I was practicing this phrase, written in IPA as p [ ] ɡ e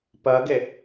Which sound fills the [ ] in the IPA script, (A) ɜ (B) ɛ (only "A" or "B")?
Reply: A